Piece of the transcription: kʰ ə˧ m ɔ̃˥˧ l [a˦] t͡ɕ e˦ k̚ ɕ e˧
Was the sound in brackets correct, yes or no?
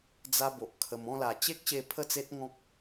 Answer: no